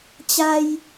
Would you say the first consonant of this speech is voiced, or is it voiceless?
voiceless